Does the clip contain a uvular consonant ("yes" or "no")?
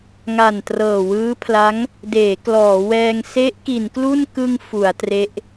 no